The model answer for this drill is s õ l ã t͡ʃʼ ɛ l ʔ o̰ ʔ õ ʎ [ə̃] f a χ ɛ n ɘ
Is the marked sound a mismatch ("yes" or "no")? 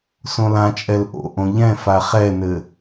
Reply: yes